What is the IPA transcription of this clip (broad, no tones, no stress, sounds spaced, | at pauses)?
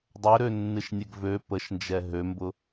dˤ ø ɾ ø nː ɨ ʃ nʲ ɛ ɡ v ø p ə ʃ n d͡ʒ ɛ ɦ ø m b ʊ